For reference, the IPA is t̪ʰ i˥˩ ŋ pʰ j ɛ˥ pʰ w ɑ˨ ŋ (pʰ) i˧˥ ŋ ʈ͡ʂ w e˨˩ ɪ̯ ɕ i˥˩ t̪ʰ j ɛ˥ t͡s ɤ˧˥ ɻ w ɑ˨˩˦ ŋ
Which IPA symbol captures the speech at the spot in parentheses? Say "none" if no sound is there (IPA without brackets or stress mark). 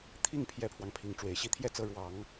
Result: pʰ